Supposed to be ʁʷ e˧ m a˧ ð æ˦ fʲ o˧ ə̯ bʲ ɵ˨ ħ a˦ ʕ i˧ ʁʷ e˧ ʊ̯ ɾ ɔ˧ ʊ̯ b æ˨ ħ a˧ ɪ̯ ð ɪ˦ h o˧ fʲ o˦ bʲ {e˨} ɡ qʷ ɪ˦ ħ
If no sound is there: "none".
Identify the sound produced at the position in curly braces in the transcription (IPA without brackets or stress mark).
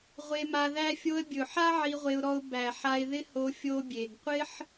e˨